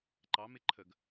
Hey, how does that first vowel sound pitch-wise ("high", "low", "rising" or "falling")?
rising